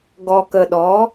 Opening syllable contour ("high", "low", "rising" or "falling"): low